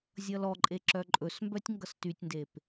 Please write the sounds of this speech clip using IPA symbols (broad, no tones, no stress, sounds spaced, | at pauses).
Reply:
zʲ ʌ l ɔ ǃʼ e ǁ œ ǃʼ ɵ s m b œ tʲ ŋ ɡ ʌ s t y tʲ n d e p